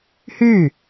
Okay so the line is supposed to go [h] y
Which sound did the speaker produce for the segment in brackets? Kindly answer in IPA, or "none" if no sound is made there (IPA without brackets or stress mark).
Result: h